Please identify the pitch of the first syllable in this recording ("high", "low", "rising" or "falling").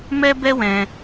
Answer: high